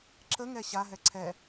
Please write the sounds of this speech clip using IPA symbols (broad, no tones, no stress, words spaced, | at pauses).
ǁəŋɛ ɕaɦɛ ǀʰɛ